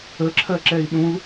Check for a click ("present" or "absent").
present